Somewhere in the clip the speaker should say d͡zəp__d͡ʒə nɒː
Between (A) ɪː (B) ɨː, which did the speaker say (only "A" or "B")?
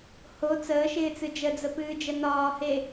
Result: B